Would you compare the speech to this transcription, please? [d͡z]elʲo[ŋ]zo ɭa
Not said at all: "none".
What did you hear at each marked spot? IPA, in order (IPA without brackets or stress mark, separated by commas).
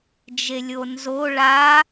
d͡ʒ, n